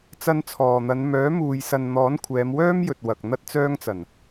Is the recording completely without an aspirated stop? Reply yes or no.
no